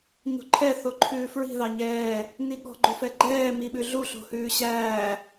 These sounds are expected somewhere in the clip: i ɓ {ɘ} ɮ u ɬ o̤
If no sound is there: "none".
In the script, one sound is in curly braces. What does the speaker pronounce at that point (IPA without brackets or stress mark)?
ʉ